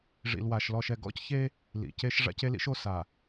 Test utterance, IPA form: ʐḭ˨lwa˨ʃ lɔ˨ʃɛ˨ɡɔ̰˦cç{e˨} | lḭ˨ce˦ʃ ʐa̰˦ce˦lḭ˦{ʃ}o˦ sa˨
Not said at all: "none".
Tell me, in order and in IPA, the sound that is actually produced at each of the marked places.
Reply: e˦, ʃ

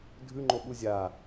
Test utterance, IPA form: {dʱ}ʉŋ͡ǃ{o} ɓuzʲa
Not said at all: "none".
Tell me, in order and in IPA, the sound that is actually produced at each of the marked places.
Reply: dʱ, o

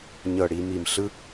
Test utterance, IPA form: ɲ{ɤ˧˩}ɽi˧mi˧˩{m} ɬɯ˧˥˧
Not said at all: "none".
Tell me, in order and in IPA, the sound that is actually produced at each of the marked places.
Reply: ɤ˧˩, m

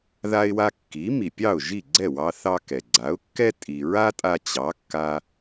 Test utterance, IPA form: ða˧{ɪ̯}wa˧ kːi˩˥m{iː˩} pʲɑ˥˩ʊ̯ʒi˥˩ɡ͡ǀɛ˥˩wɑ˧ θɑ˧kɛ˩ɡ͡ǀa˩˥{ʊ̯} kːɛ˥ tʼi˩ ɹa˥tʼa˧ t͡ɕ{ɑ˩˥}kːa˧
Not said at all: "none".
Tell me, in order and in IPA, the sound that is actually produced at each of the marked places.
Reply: ɪ̯, i˩, ʊ̯, ɑ˩˥

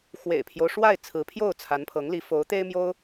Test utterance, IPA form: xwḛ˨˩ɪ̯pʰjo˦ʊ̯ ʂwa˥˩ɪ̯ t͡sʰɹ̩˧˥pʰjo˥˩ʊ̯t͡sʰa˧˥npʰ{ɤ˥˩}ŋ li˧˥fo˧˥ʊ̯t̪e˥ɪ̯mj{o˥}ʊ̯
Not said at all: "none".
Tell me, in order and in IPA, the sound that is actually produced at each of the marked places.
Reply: ɤ˧˥, o˥

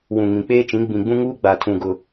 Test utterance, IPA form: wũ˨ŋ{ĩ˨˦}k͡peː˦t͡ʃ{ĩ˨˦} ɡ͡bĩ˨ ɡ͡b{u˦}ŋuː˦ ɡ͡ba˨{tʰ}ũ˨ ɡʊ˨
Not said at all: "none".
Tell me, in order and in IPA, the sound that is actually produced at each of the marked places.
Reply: ĩ˨, ĩ˨˦, ũ˦, tʰ

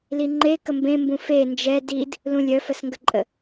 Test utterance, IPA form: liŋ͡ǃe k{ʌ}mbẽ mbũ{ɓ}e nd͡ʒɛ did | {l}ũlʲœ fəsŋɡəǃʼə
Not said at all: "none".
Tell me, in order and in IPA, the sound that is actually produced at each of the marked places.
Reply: ə, f, l

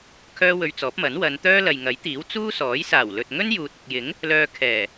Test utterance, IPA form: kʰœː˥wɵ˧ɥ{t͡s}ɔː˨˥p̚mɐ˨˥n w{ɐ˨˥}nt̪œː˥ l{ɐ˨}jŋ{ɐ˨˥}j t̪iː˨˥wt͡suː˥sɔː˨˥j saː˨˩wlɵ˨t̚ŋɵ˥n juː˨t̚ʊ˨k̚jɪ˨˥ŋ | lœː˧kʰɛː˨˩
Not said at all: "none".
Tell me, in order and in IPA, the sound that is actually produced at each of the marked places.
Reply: t͡s, ɐ˨˧, ɐ˨, ɐ˨˥

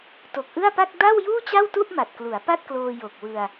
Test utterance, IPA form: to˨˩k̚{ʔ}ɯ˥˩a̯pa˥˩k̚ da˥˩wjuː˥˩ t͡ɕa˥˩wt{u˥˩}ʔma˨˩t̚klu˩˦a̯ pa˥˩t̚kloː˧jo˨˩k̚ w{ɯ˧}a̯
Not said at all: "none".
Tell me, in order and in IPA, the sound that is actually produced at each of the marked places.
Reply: ʔ, u˥˩, ɯ˧

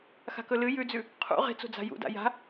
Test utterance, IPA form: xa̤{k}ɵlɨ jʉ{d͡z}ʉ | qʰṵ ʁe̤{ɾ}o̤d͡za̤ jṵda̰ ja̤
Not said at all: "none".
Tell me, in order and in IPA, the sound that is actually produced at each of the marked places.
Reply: k, d͡z, t͡s

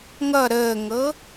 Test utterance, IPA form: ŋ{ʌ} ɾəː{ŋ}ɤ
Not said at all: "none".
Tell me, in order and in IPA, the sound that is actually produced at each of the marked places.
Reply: ʌ, ŋ

